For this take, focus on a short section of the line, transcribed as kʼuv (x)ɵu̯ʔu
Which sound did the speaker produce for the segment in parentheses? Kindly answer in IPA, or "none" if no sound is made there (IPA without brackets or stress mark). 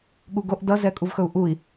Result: x